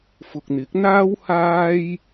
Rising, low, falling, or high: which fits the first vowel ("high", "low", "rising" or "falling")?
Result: low